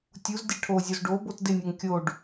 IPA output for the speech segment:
tʲuzdʲɛ ʈʰozʲoz ɖobot dɪnʲeŋ kʲoɖ

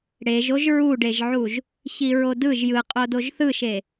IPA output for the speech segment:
ɽeʒ oʒɹuɖeʒʕuʒ | çiɹodɯʒ jɯqʼodoʒ θɯʃe

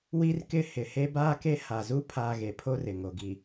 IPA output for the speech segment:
wi˦rkɪ˦ hɪ˨he˦baː˦ ke˦ ha˨zu˦ pʰaː˦ ɣe˨pʰo˦r ɪ˨ŋo˨ɡi˨

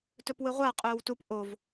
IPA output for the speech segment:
tɵpwɨʁʷa qʼɵːwtup ʔov

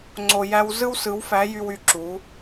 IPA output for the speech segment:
ŋ͡ǀo˨jæ˧wzɯ˦w sɯ˨˦wfæ˨˦jy˧w y˧ǁu˨˦

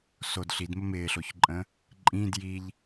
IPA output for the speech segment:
sod ɬidmə mɪːɬoçǃʼə̃ | ǃʼĩːd jiʎ

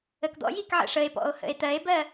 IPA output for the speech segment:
əkd̪ɔ̰jik ʕə̰ʂəe̯pɔ̰o̯ hə̰e̯t̪ɜe̯bɜ

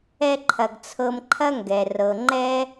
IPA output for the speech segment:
ɛ˧ǃʰɐ˩ɡ t͡sʰɤ˧mǃʰɐ˥ŋɡɛ˩ rɤ˩ ŋ͡ǃɛ˥

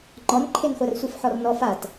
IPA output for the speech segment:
ŋ͡ǃɔnǃʰenχʷar sʷifħɔrnɔ fat

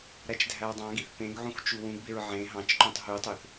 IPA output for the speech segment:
ɾæt͡ʃdʱæwdˤɑ̃ɡiθ pẽɡʕũx t͡ʃuwũɡbeɹ ʕẽ ɦɑ̃t͡ʃǃũtˤ ɦytˤøθ

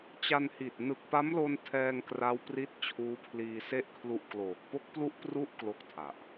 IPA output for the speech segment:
t͡ɕa˧nhi˨˩t̚ nɯ˨˩k̚pa˦˥mlo˧n tʰɛː˧ŋkra˦˥w pri˥˩t̚ t͡ɕʰuː˦˥pʰliː˧ se˥˩ʔkʰlu˦˥ʔkloː˨˩k̚ po˦˥k̚plu˦˥ʔpru˦˥ʔ klo˥˩k̚tʰa˨˩ʔ

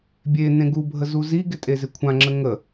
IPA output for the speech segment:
bʲenẽ ɡubʱə zuziɡɪ tʼezɪkʷʰãŋ͡ǁə ŋə

